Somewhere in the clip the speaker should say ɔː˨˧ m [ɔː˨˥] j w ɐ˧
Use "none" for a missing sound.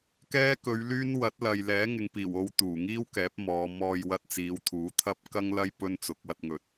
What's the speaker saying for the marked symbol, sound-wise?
ɔː˧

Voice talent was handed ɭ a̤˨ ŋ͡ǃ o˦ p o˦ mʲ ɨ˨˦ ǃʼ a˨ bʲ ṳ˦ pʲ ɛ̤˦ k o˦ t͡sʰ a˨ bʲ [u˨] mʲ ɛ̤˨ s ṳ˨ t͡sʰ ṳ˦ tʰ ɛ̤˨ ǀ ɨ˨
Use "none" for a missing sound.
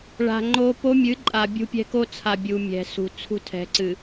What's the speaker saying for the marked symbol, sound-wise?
u˨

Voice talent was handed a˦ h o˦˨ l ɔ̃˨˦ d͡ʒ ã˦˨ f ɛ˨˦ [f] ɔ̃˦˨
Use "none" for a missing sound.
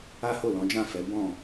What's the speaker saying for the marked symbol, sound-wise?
b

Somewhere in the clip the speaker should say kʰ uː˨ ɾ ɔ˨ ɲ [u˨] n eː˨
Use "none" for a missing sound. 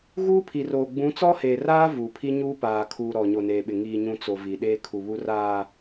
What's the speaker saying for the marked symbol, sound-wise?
o˨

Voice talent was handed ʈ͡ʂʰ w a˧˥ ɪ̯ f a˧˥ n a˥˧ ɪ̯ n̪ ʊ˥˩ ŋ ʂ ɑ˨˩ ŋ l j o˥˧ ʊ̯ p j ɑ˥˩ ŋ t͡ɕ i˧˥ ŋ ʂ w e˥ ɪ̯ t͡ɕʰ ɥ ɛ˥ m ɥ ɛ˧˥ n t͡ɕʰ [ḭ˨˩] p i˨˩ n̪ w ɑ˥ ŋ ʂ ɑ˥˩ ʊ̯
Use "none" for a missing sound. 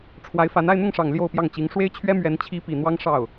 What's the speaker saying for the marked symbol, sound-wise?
i˧˥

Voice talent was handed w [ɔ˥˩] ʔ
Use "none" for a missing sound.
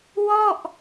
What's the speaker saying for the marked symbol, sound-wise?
ɔ˥˩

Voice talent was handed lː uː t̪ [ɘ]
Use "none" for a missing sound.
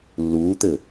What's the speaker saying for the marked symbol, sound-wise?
ɘ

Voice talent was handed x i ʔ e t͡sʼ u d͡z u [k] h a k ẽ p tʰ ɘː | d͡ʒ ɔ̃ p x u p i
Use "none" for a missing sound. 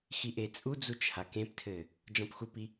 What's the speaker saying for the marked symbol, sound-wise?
t͡ʃ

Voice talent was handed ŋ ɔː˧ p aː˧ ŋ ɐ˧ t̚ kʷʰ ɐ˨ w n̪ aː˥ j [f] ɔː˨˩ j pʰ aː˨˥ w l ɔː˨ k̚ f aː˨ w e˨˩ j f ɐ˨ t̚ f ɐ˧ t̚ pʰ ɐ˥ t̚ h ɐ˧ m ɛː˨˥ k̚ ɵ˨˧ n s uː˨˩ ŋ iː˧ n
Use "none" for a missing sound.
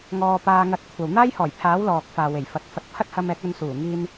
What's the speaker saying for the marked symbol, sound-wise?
h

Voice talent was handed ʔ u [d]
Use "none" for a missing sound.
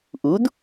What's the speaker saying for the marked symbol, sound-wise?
d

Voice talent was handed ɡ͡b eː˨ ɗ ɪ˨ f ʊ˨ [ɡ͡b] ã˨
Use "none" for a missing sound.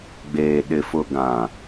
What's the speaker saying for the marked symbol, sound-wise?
ɡ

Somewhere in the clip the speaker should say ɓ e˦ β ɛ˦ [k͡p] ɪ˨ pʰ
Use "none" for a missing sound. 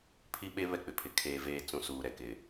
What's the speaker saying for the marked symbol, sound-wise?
k͡p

